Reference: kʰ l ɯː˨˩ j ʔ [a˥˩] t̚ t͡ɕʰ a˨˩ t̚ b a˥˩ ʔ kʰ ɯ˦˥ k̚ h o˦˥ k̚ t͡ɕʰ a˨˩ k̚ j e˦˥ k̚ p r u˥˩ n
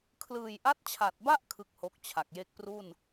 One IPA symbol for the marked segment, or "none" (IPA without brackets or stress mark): a˦˥